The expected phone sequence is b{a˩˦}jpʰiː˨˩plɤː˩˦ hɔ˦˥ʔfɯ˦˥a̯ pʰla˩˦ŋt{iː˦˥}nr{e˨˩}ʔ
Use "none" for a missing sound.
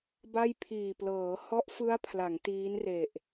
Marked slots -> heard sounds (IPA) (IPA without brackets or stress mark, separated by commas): a˥˩, iː˦˥, e˨˩